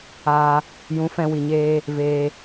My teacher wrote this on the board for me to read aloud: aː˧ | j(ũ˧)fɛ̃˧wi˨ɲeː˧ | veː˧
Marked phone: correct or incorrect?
incorrect